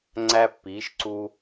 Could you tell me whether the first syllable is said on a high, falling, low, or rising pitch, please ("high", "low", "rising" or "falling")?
high